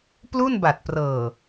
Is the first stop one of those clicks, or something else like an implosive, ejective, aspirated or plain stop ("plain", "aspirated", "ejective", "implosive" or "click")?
plain